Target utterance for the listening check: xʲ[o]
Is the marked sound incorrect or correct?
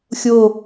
correct